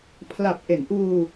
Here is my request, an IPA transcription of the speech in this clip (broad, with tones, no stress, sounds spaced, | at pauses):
pʰ l a˨˩ p̚ ʔ e˩˦ n ʔ uː˧